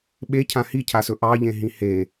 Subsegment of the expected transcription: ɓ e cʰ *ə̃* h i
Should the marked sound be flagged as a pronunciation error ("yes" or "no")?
yes